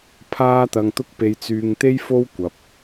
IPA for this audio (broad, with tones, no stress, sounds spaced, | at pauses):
pʰ aː˧ t̪ ɐ˨ ŋ t̪ ʊ˧ k̚ p e˧ j t͡s yː˧ ŋ t̪ e˥ j f o˥ w kʷ ɐ˨ p̚